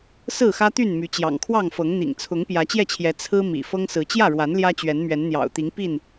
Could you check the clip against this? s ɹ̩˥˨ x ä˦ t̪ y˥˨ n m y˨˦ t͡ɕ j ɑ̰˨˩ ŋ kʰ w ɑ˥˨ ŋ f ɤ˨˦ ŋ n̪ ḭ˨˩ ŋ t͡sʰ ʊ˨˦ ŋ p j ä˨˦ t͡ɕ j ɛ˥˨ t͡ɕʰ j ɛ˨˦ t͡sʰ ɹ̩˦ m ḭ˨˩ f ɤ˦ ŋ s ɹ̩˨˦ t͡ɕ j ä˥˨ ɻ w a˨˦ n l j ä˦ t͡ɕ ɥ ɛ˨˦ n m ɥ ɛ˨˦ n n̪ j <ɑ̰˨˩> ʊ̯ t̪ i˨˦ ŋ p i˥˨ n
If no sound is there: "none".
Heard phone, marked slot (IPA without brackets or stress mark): ɑ̰˨˩